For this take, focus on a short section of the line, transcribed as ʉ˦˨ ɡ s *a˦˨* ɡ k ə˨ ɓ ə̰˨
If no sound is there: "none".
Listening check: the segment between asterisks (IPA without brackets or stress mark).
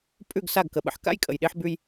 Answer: a˦˨